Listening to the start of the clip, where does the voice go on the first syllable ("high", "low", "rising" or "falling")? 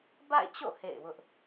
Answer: falling